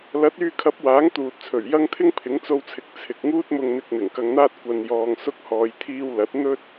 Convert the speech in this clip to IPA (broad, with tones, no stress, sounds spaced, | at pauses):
l ɐ˨˥ t̚ yː˧ kʰ ɐ˨˥ p̚ w aː˨˥ ŋ t̪ uː˨ t̚ t͡sʰ ɵ˨˩ ɥ j ɐ˥ ŋ t̪ʰ ɪ˥ ŋ pʰ ɪ˨˥ ŋ t͡s o˧ w t͡sʰ ɪ˨˥ k̚ t͡sʰ ɪ˨ k̚ ŋ uː˥ t̚ m ʊ˧ ŋ n̪ ɪ˧ k̚ n̪ ɪ˨˩ ŋ k ɐ˧ ŋ n̪ aː˥ t̚ kʷ ɐ˨ n j ɔː˨ ŋ s ʊ˧ k̚ h ɔː˨ j t̪ʰ iː˧ w l ɐ˨˥ t̚ n̪ ɵ˥ t̚